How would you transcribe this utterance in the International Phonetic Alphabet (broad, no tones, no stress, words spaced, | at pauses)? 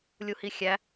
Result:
lʲuhixʲæ